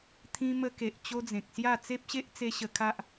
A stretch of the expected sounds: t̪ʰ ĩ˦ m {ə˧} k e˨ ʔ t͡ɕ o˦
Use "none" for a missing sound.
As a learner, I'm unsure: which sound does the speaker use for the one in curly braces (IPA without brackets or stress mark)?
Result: ə˦